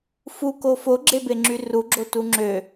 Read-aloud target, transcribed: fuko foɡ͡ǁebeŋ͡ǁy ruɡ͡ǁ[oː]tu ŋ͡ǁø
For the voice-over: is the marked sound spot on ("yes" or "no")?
no